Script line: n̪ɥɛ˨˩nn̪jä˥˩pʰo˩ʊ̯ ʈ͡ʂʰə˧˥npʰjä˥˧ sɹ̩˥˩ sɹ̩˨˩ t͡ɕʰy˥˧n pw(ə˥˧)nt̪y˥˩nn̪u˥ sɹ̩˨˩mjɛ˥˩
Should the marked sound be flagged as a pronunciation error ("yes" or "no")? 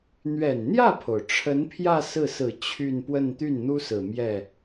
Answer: no